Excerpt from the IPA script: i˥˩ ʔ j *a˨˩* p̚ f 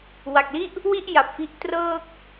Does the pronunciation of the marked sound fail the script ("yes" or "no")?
no